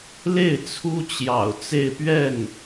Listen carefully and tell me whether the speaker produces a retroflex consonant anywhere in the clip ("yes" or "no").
no